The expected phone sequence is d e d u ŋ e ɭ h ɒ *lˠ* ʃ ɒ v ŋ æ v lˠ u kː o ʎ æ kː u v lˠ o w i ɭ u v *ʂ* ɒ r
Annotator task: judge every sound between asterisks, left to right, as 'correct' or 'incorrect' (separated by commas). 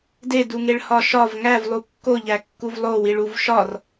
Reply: incorrect, incorrect